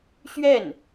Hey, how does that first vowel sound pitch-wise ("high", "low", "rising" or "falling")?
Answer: falling